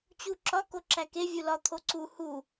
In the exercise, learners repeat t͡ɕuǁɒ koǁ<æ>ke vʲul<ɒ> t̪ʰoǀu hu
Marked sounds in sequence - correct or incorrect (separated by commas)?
correct, correct